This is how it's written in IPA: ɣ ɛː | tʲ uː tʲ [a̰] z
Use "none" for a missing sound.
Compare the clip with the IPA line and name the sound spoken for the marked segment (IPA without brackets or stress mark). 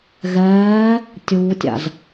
a̰